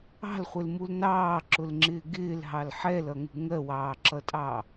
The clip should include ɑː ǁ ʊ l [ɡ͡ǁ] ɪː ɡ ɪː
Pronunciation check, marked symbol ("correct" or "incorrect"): incorrect